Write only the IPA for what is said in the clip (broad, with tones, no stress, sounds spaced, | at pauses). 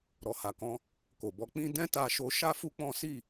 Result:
ɾ ɔ˨ h a˨ k ɔ̃˧ | k o˨ b ɔ˧ k͡p ĩ˦ d ɛ̃˦ t a˧ ʃ o˧ ʃ a˦ f u˦ k͡p ɔ̃˦ s i˦˨